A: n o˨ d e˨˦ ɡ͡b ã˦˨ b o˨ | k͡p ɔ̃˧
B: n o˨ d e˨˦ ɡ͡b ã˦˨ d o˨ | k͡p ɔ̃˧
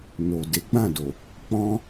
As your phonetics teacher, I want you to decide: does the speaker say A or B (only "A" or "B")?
B